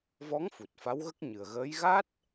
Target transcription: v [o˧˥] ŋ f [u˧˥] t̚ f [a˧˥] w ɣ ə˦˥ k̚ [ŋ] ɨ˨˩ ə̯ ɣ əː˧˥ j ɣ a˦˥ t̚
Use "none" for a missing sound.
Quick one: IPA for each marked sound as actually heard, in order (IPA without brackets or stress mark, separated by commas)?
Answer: ɔ˧˥, u˨˩, a˧˥, ɲ